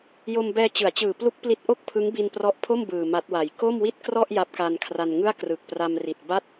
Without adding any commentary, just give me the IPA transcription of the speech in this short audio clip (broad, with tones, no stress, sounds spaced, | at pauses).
j o˧ m b ɛː˧ t͡ɕ ɯ˩˦ a̯ t͡ɕ ɯː˨˩ p l u˦˥ k̚ p l i˦˥ t̚ ʔ o˥˩ k̚ pʰ ɯ˦˥ ŋ b i˧ n p r ɔ˦˥ ʔ pʰ o˥˩ m b ɯː˨˩ m a˦˥ t̚ w a˨˩ j k o˥˩ m w i˥˩ t̚ k r ɔ˥˩ ʔ j a˦˥ p̚ k a˧ n kʰ r a˧ n ŋ ɯ˥˩ a̯ k r ɯ˨˩ k̚ p r a˧ m r i˨˩ t̚ b a˥˩ t̚